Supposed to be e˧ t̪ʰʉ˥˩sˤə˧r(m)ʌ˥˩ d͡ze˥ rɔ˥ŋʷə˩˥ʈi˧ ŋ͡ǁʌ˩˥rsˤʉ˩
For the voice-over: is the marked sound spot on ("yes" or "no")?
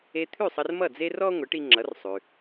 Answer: yes